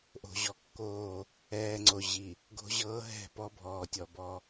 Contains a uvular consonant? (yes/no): no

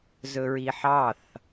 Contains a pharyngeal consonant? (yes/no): yes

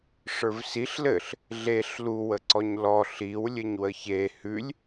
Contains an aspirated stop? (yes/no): no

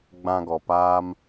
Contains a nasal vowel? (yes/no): yes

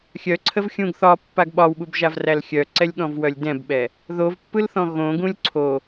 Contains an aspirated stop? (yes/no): yes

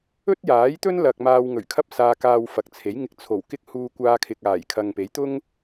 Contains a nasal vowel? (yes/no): no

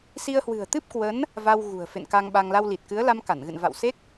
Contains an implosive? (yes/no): yes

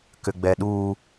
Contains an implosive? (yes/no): yes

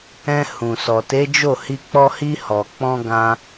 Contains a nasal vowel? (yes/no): yes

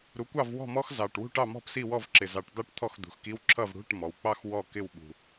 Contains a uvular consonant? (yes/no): no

